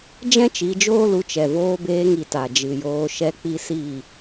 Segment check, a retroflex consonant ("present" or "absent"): absent